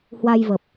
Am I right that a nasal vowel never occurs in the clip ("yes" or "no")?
yes